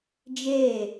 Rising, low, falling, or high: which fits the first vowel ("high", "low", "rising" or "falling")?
falling